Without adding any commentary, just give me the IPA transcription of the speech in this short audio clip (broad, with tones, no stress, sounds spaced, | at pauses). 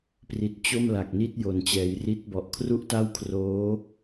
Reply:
p r i˨˩ t̚ t͡ɕ o˥˩ m l a˨˩ k̚ n i˥˩ t̚ j o˨˩ n t͡ɕ ɛː˩˦ j r i˦˥ t̚ b ɔ˨˩ ʔ kʰ r u˥˩ ʔ t a˥˩ w kʰ r oː˦˥